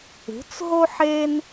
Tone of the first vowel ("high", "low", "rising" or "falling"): rising